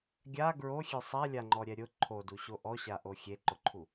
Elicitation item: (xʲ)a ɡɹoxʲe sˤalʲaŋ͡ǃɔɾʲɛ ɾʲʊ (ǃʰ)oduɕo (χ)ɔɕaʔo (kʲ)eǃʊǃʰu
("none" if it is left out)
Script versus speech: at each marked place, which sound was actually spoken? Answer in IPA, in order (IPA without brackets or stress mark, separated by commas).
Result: ɡʲ, ǃʰ, ʔ, xʲ